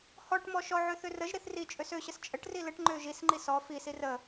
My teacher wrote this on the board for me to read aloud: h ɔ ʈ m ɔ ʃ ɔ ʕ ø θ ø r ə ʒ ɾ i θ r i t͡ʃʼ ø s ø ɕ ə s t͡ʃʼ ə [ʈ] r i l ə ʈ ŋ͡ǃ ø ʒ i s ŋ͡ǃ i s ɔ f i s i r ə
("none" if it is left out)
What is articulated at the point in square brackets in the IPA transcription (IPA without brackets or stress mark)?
ʈ